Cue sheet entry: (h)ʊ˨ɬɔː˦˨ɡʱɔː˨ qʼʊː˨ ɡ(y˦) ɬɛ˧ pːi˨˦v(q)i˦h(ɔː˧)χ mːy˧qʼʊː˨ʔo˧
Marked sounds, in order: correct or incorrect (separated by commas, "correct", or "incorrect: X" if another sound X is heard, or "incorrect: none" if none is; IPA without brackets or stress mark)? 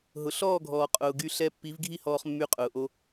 incorrect: ɦ, incorrect: y˧, incorrect: ɡʱ, correct